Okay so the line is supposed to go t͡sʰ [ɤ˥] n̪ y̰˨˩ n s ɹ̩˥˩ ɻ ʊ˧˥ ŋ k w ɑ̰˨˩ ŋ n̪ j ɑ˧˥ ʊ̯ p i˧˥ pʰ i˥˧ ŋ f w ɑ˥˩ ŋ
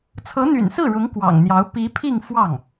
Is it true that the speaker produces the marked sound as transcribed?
no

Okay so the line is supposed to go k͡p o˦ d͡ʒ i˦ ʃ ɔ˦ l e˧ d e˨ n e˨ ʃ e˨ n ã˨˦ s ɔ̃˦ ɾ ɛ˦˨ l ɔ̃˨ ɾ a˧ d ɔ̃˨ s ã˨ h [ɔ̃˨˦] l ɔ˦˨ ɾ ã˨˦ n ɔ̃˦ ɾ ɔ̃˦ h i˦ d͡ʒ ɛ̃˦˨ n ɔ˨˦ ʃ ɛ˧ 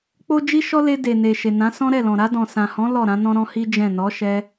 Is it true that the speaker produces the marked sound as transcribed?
yes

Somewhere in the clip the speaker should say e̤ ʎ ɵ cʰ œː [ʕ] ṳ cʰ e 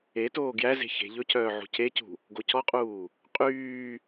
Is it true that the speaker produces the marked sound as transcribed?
yes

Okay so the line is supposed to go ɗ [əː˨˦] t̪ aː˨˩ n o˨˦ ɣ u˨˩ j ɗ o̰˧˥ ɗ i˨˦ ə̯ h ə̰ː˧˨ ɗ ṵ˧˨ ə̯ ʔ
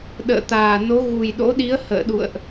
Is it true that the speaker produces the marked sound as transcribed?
no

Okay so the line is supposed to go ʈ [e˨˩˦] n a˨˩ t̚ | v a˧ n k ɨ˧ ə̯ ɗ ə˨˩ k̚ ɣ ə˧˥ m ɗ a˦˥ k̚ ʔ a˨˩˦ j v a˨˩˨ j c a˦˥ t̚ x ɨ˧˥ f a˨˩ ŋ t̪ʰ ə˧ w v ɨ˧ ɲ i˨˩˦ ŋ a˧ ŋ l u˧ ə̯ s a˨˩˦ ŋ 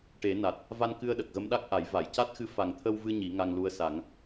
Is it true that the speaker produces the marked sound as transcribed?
yes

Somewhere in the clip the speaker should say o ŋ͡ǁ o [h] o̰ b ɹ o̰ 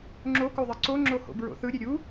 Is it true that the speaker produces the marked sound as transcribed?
yes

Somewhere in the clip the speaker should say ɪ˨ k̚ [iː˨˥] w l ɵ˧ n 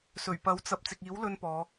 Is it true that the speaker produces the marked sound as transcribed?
yes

